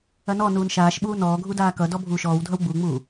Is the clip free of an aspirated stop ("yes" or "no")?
yes